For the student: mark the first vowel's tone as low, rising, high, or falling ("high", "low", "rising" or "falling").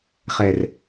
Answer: low